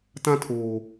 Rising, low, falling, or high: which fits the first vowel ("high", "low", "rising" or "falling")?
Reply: high